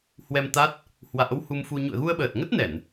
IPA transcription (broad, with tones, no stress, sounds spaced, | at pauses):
h w ɛ˧ m t̪ a˦˥ t̚ | h w a̰ː˧˥ w h u˧ m f u˧ ɲ ṵ˧˨ ə̯ ɣ u˧ ə̯ ɓ əː˨˩ t̚ ŋ ə˦˥ t̚ n ɛ˧˩˨ n